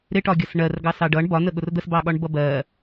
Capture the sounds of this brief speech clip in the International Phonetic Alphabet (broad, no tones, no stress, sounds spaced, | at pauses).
ɾ ɪ ʈ ɒ ɡʲ ʌ s ɳ ɜ r ɡ ɑ s ɑ ɖ ʌ ɳ b ɒ n ə ɠ ʊ r d̪ ə s b ɑ ɠ ɒ ɳ b ʌ b ɜ